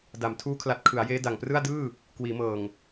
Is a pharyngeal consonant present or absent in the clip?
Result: absent